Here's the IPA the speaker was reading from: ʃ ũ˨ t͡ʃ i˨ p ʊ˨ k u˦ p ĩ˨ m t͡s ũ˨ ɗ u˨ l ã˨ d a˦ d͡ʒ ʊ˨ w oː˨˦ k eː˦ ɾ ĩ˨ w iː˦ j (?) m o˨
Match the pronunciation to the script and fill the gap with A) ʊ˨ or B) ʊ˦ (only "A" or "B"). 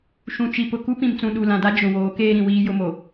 B